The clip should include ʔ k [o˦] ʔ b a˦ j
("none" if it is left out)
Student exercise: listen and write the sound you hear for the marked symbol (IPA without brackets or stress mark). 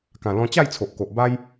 o˨